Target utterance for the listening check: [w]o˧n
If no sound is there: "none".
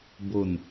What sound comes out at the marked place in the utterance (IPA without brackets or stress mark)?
b